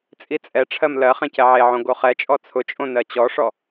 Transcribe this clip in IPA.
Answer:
t͡sʼ i t͡sʼ ɛ ʈ͡ʂʰ ɜ m l ɜ χ ɛ̃ c ɛ ʕ e ʕ õ ɡ o χ ɛ t͡ʃʼ ɔ t͡sʰ ʊ t͡ʃʼ õ n ɜ t͡ɕ ɔ ʂ ɔ

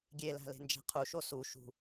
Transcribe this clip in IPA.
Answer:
ɡʲ e l æ̤ l e̤ n d͡ʒ æ̤ qʰ u ʃ o s u ʃ ṳ

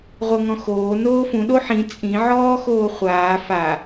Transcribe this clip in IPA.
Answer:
ʁʷ ɤ ŋ ɔ̃ x oː n oː f ũ ɗ o ħ ĩ t͡sʼ ĩ ʕ ɔː x oː χʷ aː f a

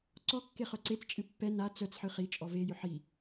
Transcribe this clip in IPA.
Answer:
ǀ ɔ kː e χ œ ǀ e t͡s t͡ʃʼ ɨ pː ɛ n a t͡s œ t͡s ħ ɨ χ i t͡ʃʼ ɔ v e j ʏ ħ i

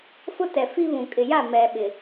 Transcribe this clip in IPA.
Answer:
f ʊ˦ t ɛ˨ f i˦ β ũ˨ kʼ ɪ˨ j a˦˨ m ɛ˨ ɓ ɪ˨

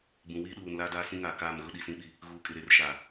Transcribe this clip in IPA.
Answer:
b ũ˨ w iː˦ ɗ uː˨ n l aː˦ d aː˦ s ĩ˦ ŋ aː˨ k aː˦˨ m ɣ ʊ˦ ɗ i˨ s ĩ˦ ɓ i˦˨ | ɣ uː˨ kʼ ɪ˨ ɾ e˨ r ʃ aː˨

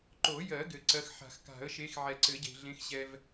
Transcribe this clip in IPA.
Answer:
ǃ o˨˩˦ j ɜ˨˩˦ ɡ ɘ˨˩˦ ǀ ɜ˨˦ x ħ a̤˨˩˦ x k a̤˨˩˦ ə̯ ʃ e˨˦ x ʕ ɛ˨ ǀ ɘ˨˩˦ ɟ e̤˨ ɮ ẽ˨˦ x ɕ ɛ˨ v

